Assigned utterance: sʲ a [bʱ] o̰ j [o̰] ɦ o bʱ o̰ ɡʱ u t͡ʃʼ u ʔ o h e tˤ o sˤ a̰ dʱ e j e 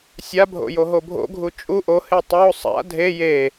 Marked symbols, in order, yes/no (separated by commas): yes, no